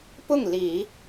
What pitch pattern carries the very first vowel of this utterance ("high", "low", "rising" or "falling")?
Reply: falling